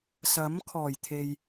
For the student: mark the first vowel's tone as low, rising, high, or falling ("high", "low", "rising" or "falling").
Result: rising